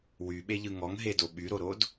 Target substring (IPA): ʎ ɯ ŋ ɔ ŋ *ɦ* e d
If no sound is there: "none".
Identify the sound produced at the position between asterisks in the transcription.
ɦ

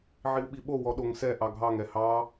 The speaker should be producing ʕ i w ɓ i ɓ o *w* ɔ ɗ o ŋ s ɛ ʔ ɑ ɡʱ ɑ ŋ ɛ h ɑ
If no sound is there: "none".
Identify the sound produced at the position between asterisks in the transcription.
w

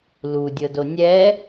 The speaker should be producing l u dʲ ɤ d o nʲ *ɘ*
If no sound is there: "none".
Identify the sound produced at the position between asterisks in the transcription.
ɛ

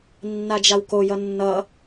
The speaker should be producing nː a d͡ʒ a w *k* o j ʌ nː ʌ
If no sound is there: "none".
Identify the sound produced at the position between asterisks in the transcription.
k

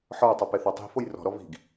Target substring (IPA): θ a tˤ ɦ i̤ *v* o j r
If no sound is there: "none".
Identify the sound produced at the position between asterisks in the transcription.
f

